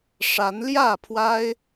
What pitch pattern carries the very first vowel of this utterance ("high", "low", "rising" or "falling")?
rising